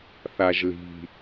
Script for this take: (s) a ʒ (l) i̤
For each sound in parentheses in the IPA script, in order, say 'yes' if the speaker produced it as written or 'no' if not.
no, yes

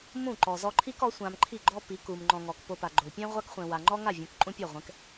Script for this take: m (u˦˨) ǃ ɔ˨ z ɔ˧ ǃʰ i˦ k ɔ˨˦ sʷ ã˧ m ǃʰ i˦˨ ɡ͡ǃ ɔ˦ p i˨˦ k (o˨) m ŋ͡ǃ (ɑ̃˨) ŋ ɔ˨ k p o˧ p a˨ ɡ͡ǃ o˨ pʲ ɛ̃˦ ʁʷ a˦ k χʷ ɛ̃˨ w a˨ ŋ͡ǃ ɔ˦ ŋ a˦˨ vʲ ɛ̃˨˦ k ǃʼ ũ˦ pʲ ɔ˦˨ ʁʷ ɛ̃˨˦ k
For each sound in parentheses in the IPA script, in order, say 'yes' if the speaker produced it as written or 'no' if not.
no, no, no

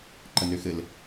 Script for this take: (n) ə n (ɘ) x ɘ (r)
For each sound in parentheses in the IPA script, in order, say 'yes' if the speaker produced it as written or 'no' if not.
no, no, no

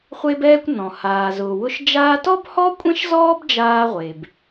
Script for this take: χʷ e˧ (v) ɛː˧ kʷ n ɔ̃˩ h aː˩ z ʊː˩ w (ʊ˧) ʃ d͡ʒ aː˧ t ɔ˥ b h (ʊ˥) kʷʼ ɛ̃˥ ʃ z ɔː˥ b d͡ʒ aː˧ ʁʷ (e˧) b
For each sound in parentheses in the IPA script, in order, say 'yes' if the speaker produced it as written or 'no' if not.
no, yes, no, no

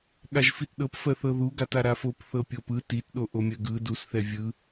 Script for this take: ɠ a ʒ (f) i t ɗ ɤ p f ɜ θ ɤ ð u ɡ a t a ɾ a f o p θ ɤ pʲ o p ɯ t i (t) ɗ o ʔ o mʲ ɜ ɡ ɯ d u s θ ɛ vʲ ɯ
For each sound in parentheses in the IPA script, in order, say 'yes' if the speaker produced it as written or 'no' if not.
yes, yes

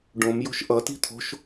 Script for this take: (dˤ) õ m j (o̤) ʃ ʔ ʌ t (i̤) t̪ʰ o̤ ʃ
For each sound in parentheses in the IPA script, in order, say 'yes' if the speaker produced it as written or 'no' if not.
no, yes, yes

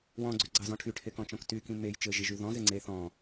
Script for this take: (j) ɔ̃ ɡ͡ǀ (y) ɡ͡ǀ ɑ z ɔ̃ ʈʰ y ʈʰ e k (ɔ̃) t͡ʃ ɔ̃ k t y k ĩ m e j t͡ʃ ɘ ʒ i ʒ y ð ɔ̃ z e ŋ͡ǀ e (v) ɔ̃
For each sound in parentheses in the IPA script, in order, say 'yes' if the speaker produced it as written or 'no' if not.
no, yes, yes, no

